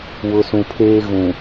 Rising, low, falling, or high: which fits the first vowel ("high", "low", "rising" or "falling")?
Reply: low